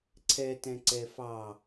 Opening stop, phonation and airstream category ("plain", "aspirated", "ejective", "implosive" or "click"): click